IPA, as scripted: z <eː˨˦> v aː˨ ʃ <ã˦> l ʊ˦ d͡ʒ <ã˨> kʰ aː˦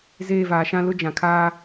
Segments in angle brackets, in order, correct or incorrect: incorrect: eː˦˨, correct, correct

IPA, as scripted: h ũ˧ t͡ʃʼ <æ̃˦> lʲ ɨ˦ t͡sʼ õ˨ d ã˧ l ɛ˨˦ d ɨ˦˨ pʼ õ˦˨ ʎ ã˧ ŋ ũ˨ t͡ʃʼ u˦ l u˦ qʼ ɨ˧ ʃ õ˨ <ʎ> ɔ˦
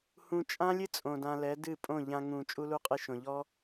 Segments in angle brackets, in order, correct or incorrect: incorrect: ã˦, correct

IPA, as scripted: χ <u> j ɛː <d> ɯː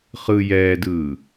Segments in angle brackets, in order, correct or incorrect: incorrect: ɯ, correct

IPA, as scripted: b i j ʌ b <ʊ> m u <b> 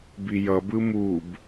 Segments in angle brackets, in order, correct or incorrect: incorrect: ɯ, correct

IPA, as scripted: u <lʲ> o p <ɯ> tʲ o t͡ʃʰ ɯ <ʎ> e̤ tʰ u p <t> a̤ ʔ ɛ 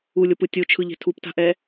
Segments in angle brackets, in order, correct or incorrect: correct, correct, correct, correct

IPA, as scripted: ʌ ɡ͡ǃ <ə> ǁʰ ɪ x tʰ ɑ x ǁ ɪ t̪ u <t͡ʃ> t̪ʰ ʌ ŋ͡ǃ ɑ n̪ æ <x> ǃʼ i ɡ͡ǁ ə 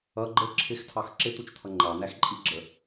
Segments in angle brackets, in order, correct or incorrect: correct, correct, correct

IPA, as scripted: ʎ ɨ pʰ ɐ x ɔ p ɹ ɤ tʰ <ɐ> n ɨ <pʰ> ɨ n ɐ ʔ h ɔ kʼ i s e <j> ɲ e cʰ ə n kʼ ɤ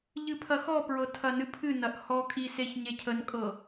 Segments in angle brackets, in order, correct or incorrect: correct, correct, incorrect: ç

